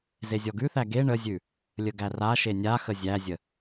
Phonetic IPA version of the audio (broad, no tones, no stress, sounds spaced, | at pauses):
z e zʲ ɔ ɡ ʉ θ æ ɡ e ɳ ə zʲ ʉ | lʲ ə ɡ æ r a ʃ e nʲ a x ə zʲ æ zʲ ə